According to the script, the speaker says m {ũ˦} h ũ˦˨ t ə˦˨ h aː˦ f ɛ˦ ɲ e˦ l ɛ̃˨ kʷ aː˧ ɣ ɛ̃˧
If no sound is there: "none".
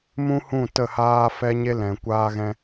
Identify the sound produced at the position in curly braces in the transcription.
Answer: ũ˦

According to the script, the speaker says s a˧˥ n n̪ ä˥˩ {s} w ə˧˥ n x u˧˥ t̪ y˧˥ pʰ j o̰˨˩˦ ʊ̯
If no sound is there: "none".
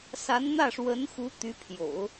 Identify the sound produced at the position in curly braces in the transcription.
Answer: ʂ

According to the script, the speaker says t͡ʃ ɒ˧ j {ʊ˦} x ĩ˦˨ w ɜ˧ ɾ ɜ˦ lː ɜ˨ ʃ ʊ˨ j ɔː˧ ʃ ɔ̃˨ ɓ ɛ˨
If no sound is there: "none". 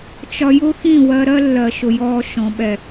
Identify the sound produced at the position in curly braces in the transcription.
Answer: ʊ˦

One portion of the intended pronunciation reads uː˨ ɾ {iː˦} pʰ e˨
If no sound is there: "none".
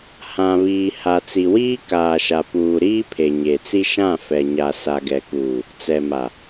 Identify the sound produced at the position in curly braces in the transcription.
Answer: iː˦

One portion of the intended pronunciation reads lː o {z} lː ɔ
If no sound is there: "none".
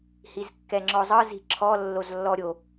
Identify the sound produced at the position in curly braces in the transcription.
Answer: z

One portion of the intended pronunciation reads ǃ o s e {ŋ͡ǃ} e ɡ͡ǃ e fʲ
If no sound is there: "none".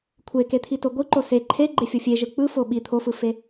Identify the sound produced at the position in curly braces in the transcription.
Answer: ǃʰ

